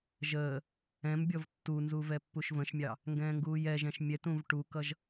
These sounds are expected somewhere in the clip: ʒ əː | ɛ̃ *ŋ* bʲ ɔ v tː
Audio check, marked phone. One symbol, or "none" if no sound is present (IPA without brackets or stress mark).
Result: m